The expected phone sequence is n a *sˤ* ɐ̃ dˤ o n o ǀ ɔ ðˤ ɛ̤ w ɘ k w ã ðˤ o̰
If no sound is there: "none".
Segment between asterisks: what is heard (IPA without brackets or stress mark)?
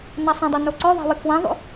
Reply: sˤ